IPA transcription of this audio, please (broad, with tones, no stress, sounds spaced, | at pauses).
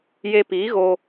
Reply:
j e˧ p iː˨˦ ɣ o˧